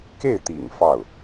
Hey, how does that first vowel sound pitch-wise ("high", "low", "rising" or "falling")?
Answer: falling